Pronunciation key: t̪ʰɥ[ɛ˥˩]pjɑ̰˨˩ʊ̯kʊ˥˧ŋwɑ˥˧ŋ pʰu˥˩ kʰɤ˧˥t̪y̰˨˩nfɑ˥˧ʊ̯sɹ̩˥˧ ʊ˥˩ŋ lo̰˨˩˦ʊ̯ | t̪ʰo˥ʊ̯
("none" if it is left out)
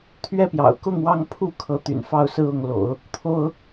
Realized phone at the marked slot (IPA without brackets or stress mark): ɛ˥˩